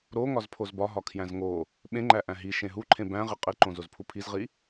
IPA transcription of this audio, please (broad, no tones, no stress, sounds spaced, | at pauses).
ɾ o ŋ ɒ z pʰ o z b ɒ ɦ ɒ kʰ j æ̃ z ŋ o | ɓ ẽ ŋ͡ǃ æ ʔ æ̃ ɦ i ʃ ẽ ɦ u ǃʰ ẽ b æ̃ ʁ i qʼ i ǃ õ z o z pʰ u pʰ i z ʁ i